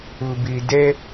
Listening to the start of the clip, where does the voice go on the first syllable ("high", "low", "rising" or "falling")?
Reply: low